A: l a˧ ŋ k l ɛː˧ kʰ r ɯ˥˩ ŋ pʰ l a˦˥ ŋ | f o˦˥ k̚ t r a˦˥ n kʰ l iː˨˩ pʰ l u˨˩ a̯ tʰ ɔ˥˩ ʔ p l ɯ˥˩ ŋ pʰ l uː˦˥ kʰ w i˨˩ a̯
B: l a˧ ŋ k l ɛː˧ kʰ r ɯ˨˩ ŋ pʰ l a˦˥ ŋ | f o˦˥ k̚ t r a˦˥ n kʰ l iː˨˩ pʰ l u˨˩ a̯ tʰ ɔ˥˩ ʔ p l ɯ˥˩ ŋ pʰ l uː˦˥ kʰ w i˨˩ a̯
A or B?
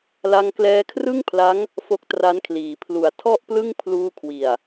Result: A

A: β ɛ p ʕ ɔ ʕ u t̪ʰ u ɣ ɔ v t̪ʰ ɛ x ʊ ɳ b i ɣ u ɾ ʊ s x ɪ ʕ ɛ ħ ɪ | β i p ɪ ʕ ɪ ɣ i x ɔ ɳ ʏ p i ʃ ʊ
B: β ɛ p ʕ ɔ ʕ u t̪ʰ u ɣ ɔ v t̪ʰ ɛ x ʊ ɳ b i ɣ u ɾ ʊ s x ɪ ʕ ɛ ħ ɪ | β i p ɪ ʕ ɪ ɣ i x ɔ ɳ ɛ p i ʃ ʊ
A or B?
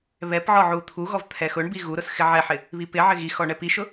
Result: B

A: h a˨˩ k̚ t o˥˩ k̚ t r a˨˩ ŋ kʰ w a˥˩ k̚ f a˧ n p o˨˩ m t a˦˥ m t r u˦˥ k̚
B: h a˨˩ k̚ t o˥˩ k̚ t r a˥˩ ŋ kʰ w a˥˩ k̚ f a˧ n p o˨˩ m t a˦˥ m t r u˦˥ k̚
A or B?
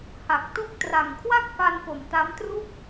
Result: A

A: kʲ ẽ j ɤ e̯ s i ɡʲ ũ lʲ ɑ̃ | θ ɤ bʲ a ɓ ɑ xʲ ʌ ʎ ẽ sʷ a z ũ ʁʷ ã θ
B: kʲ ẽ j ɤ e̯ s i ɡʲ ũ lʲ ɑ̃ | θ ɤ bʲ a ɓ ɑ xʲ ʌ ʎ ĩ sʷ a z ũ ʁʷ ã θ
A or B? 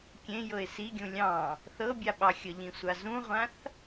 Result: B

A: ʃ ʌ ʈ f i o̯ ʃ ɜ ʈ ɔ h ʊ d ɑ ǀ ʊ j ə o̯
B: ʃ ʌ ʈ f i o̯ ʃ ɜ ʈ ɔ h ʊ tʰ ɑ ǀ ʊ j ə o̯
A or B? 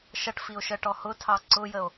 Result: B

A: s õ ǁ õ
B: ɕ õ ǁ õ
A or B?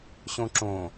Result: B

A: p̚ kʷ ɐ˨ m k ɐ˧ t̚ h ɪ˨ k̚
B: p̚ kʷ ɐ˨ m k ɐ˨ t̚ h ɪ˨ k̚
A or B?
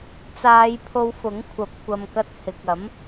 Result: A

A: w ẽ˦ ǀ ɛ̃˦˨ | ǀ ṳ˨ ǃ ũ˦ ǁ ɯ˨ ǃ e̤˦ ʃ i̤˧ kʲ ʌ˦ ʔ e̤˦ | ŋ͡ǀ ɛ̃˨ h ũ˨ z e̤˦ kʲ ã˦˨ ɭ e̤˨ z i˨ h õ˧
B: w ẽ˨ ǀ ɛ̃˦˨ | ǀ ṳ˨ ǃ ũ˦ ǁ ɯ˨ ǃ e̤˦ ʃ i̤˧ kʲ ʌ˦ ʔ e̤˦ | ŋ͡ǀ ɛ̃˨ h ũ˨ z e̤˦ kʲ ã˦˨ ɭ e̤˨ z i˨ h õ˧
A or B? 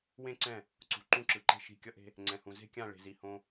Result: A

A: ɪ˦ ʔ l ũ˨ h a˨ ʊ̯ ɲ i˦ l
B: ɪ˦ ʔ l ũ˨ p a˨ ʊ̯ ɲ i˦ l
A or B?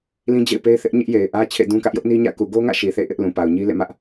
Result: B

